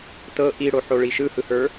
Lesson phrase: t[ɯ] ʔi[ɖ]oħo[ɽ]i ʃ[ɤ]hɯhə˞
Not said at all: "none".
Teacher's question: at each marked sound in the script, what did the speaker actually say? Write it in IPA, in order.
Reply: ɤ, ɽ, ɭ, ɯ

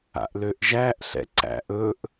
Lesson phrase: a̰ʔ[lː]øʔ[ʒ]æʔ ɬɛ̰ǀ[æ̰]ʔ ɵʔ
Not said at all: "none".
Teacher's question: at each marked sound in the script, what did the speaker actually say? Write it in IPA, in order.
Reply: l, ʒ, æ̰

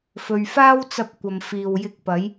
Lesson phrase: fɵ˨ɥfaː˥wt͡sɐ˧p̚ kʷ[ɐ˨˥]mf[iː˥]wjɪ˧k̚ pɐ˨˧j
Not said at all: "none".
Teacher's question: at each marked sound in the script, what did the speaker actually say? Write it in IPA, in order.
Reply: ɐ˨, iː˨

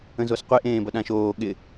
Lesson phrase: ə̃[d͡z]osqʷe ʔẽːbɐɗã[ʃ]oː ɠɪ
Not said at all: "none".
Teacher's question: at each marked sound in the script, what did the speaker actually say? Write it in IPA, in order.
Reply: z, ʃ

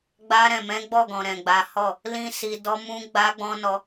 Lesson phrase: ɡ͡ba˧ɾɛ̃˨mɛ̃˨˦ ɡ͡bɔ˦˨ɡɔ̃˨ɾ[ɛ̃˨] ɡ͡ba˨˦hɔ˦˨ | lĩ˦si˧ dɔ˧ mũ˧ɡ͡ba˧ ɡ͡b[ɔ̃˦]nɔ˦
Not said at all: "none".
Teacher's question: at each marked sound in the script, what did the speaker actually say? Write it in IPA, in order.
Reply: ɛ̃˨, ɔ̃˦

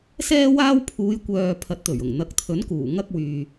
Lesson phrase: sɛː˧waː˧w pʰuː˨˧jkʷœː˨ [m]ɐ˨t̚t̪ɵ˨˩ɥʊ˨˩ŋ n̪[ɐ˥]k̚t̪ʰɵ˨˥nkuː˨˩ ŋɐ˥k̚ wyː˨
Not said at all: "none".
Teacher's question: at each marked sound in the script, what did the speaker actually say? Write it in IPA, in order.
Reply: pʰ, ɐ˨˥

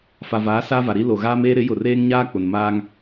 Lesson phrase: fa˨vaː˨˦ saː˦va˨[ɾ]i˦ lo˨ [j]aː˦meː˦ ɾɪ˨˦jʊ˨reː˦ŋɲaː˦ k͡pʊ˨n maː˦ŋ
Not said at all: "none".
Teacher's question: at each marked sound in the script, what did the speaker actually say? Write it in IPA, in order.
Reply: ɾ, ɣ

